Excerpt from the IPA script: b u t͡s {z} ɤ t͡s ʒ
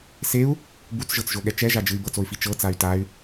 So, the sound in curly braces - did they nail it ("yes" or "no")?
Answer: no